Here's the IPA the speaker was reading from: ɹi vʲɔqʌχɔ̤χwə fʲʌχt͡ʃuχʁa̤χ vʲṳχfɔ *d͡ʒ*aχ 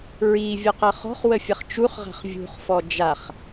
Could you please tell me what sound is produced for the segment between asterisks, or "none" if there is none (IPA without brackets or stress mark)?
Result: d͡ʒ